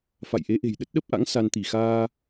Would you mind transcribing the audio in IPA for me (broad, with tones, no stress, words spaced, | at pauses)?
fa̰˧˨jʔe˨˦ʔe̤˨˩j ɗə˦˥t̚ɗə˦˥p̚ʔa̰˧˥ŋ sa˧n t̪i˧˩xaː˧